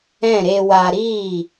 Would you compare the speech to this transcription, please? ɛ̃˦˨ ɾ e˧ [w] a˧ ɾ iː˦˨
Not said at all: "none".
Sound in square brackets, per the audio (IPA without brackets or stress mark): w